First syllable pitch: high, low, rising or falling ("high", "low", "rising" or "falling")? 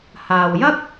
low